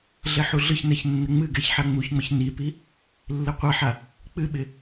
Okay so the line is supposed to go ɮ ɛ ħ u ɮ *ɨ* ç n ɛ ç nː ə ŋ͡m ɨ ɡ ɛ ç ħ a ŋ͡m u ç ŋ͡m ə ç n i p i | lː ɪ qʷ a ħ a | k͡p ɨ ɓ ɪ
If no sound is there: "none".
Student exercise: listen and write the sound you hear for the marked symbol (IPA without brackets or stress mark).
ɨ